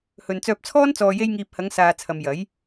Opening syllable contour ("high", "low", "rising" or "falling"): low